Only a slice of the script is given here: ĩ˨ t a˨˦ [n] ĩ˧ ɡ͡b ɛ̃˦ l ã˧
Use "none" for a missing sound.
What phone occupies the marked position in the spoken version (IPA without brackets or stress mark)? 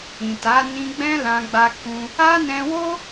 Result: n